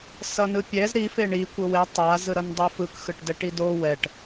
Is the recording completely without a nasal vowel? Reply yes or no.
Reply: yes